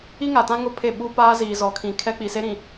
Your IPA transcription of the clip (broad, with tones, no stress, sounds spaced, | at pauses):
i˦ ŋ a˨ t ã˦ ŋ ʊ˦ pʰ e˦˨ ɓ u˦ p aː˦ z iː˨ z ɔ˨ kʰ ĩ˨ kʰ ɛ˦ k͡p i˨ s e˦ ɾ ĩ˨